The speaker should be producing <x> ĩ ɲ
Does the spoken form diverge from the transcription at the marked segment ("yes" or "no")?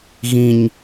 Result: yes